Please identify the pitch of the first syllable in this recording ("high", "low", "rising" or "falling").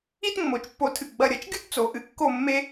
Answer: high